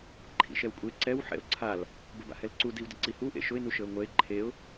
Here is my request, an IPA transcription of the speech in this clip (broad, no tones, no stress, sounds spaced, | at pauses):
ǃʰ ḭ ʃ ɛ w kʷʼ e ǀ ɛ w ħ ɛ̰ ʊ̯ ǀʰ a l | b ə b a̰ h ɛ l ǀ u d i w d ə ǀ i h u ʔ ḛ ʃ ʊ ɪ̯ n u ʃ ə ʊ̯ ŋʷ ɛ ɪ̯ ǃʰ e ʊ̯